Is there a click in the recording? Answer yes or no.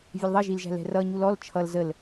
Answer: no